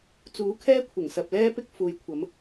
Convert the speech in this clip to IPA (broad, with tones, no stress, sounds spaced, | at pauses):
t͡s uː˨˥ kʰ ɛː˥ kʷʰ ɪ˨˩ ŋ s ɐ˨ p̚ l ɛː˥ p ɪ˥ k̚ f uː˨ j kʷʰ ɐ˨˧ m